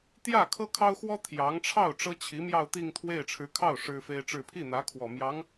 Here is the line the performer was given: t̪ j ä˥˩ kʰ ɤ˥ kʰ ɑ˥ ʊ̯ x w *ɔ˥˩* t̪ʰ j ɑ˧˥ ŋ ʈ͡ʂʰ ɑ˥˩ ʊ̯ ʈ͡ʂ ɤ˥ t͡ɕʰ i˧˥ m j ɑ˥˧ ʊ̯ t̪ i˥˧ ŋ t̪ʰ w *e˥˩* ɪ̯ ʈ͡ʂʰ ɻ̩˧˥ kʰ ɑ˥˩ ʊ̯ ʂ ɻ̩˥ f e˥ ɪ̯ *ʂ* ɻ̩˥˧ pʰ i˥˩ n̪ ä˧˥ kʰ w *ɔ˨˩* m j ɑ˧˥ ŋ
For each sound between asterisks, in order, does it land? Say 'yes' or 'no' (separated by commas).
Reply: no, yes, no, yes